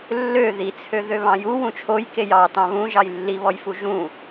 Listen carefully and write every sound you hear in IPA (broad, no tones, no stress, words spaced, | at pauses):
lːø ðit͡sʰøðø βɑ̃ju wũt͡ʃʰojkej ɑ tɑ̃βũʒɑj lːiβɔjfu ʒũ